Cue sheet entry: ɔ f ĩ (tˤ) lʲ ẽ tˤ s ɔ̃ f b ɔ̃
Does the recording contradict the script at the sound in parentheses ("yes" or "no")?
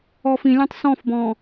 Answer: yes